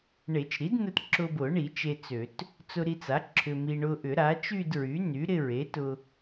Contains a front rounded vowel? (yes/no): yes